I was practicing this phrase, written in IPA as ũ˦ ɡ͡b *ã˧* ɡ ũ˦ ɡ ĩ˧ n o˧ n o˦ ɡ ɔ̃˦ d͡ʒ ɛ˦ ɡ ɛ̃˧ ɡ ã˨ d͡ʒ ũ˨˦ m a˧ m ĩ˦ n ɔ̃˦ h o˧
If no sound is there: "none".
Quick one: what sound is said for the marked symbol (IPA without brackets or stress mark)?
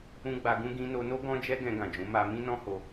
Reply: a˧